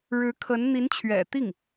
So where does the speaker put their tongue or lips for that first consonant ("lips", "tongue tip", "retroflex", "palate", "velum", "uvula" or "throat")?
retroflex